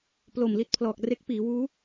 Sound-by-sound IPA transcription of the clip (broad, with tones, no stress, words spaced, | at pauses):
plo˨˩mli˦˥t̚pʰlɔː˨˩k̚ re˦˥k̚piː˩˦wuː˦˥